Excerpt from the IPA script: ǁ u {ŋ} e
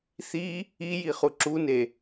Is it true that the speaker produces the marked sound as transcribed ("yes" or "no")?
no